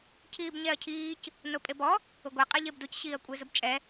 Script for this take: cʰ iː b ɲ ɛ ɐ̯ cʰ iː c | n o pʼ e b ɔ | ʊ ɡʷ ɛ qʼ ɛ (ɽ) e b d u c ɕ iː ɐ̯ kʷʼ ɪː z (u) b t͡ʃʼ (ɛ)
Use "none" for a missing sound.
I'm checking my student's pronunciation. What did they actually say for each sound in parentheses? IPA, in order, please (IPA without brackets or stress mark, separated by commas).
ʎ, ʊ, ɛ